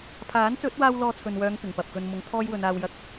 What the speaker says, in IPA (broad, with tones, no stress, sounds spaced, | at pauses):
pʰ aː˨˥ n t͡s ɵ˨˥ t̚ w aː˧ w l ɔː˧ t͡sʰ ɵ˨ n w œː˨˧ ŋ p ɪ˨˩ ŋ p ɐ˨ p̚ k ɵ˧ n m ʊ˨˥ ŋ t̪ʰ ɔː˥ j w ɵ˨˧ n aː˧ w j ɐ˧ k̚